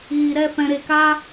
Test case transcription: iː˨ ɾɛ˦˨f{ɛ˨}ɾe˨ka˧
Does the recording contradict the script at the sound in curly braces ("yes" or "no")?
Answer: yes